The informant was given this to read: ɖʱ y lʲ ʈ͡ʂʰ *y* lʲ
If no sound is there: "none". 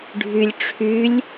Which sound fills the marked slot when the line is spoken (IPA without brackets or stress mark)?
y